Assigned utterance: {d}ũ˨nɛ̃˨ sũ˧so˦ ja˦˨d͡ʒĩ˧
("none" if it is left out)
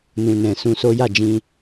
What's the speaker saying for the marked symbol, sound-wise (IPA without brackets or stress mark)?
n